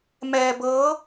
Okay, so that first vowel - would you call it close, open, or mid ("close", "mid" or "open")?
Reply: mid